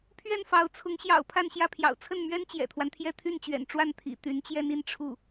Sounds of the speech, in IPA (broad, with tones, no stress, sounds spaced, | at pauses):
pʰ ɥ ɛ˥˩ n f ɑ˧˥ ʊ̯ t͡sʰ ʊ˧˥ ŋ ɕ j ɑ̰˨˩ ʊ̯ pʰ a˥˧ n ɕ j ä˥˩ pʰ j ɑ̰˨˩ ʊ̯ t͡sʰ ə˥˩ n m ɥ ɛ˥ n t͡ɕ j ɛ̰˨˩ t̪ʰ w a˦ n t̪ʰ j ɛ˥˧ t̪ʰ y˥˩ n t͡ɕ ɥ ɛ̰˨˩ n ʈ͡ʂ w a˥˩ n t̪ʰ ḭ˨˩ t̪ y˧˥ n t͡ɕ j ɛ˥ n i˥˧ n ʈ͡ʂʰ u˥˩